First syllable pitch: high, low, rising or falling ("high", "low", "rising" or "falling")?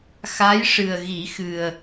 rising